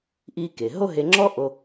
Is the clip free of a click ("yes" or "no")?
no